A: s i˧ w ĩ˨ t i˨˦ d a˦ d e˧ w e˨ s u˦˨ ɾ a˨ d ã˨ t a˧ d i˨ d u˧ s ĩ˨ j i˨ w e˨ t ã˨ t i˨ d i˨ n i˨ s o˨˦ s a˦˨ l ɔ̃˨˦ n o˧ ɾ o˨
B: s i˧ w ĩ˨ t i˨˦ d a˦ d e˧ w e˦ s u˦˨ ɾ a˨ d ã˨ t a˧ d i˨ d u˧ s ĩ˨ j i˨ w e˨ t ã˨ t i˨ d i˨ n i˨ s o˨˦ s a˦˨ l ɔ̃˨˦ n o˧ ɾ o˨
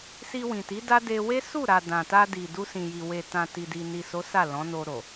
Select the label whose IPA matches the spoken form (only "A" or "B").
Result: B